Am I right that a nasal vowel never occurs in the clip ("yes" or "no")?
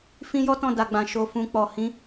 no